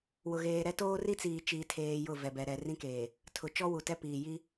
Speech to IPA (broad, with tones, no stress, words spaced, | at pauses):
wʊ˨ɣeː˨ɾɛ˦toː˦ ri˦t͡siː˨t͡ʃiː˨tʰeː˨ jʊ˦˨vɛ˨bɛ˨ ɾɛ˨rĩ˦keː˨ | tʰʊ˨ t͡ʃɔ˦wu˨tɛ˦piː˨ ji˦